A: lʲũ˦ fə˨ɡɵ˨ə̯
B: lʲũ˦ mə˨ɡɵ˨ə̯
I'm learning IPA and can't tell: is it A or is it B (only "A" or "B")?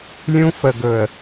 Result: A